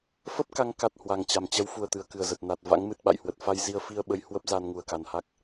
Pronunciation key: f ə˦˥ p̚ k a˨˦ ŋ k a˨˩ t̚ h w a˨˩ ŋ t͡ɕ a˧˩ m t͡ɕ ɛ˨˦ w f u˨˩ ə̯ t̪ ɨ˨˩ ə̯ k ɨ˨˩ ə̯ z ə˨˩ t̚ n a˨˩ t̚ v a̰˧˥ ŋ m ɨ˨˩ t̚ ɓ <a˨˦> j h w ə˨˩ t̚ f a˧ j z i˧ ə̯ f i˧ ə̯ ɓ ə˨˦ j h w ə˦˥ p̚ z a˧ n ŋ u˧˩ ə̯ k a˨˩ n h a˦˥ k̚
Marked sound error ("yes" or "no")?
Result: yes